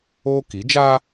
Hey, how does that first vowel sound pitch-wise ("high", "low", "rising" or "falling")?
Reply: high